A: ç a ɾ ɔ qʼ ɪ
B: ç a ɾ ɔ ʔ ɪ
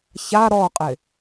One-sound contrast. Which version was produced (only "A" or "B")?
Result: A